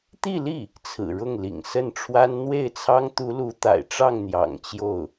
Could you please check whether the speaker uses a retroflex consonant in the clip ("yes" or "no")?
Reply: yes